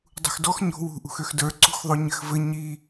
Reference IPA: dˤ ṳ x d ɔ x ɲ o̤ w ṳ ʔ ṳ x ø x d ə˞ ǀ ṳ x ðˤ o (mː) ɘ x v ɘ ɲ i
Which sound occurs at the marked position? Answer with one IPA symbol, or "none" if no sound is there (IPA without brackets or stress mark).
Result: ɲ